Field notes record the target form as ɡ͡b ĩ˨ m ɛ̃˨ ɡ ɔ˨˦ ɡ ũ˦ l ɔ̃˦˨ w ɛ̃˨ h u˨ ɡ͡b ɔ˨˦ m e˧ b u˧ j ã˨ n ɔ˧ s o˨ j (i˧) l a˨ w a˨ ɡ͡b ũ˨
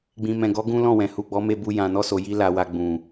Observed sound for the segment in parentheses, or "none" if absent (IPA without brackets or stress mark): i˧